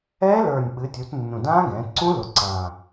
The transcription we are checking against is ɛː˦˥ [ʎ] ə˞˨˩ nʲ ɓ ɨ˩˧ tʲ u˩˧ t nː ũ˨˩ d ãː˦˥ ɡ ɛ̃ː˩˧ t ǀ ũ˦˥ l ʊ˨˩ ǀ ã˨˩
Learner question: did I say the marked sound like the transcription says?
no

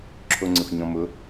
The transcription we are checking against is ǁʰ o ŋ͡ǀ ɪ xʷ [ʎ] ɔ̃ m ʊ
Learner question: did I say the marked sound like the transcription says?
no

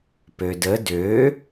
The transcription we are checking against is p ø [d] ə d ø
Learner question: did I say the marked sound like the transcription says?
yes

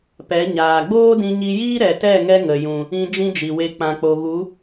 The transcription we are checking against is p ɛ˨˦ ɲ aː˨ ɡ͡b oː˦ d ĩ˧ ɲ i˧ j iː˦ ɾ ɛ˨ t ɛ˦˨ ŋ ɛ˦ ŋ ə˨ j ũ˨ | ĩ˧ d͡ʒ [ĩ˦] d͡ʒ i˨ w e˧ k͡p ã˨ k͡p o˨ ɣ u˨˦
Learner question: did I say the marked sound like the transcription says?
yes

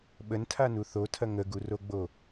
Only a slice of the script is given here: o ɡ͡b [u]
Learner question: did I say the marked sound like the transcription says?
no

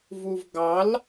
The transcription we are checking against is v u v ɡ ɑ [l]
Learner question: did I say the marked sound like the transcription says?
yes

